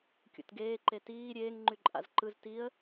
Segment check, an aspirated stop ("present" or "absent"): absent